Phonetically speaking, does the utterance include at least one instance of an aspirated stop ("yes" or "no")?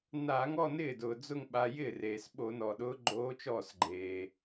no